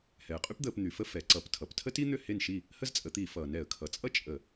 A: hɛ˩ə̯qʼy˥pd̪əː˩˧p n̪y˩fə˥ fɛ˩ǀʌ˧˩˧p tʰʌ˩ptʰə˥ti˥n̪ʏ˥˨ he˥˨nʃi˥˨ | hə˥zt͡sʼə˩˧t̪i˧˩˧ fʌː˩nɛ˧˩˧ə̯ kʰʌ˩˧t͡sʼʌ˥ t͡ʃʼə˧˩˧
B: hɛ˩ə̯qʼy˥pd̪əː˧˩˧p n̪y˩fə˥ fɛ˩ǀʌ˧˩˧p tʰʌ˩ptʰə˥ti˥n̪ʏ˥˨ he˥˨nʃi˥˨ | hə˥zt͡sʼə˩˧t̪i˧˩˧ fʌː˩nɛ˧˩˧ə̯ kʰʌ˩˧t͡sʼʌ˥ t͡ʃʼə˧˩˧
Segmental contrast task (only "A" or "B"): B